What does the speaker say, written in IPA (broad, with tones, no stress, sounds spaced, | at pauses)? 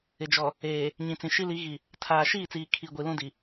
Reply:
ɪ˨ d͡ʒ ɔ˨ | eː˨ | ɲ ĩ˨ t͡s ĩ˨ ʃ i˦ l i˨˦ ɣ i˨ | tʰ aː˨ ʃ iː˦˨ t͡s iː˨ kʰ i˨ ɡʷ i˨ l ũ˦ d i˨